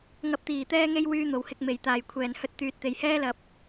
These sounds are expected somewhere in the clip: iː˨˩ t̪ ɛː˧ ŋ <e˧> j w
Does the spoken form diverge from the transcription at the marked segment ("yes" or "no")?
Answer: no